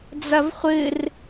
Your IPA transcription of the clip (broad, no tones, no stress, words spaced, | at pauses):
d͡zɐvχʷɨr